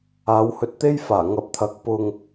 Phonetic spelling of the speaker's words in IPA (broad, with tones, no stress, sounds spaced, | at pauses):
aː˨˧ w h ɵ˧ t̚ t̪ e˥ j f aː˨˩ ŋ ɐ˨˥ p̚ t̪ʰ ɐ˨˥ k̚ p ʊ˨ ŋ